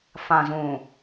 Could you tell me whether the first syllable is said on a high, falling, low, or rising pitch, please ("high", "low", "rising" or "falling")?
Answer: low